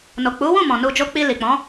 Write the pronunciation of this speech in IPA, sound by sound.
no˨k͡pu˨˦wũ˦˨mɔ̃˨ nu˧d͡ʒo˦ k͡pi˧li˨k͡pɔ̃˨˦

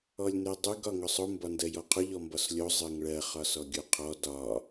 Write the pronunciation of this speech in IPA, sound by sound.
ɔlʲnedˤuɡ ɒŋʊsˤʊ mbɒndɜjɔqʰʊ ʎɔmbɒslʲo zˤɜŋɭɜ χɒsɔɡʲoqʰɔ dɒ

